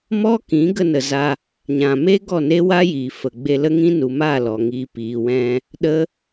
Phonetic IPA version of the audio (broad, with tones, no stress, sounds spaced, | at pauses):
m ɔ˦ k ĩ˨˦ ɡ ə˧ n ə˨ z a˧ | ɲ ã˨ m e˦ ɡ ɔ˦˨ n e˦ w a˦ j iː˨ f ə˨ ɡ͡b e˧ l ə˦ ŋ ĩ˦ n u˨ m aː˦˨ l ɔ˨ ŋ iː˨ p iː˨ w ɛ̃˧ | ɗ ə˦